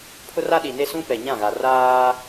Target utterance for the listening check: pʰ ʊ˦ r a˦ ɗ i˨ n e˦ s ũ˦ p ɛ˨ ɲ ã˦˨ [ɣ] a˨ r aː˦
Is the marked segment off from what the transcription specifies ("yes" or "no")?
no